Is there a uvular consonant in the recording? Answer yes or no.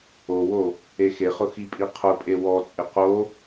yes